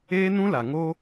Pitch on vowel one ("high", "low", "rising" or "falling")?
high